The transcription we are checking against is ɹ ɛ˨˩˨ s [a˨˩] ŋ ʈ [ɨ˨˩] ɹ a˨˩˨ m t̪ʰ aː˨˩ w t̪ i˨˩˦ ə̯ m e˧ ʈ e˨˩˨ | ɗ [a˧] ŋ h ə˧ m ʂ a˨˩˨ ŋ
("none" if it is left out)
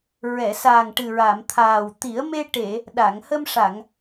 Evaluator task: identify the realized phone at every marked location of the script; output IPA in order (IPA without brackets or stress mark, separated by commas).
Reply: a˨˩, ɨ˨˩, a˨˩˨